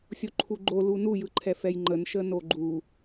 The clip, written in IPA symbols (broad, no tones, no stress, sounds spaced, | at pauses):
sʲ o ǃʰ u ɡ͡ǃ o l u n u j ɯ ǃʰ ɛ f ɛ j ŋ͡ǃ ə n ʃ ə n o ɡ͡ǃ u